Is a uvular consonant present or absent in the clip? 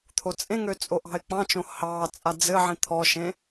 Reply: absent